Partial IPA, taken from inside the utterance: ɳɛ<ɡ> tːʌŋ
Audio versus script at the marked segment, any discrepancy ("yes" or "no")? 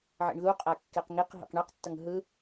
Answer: yes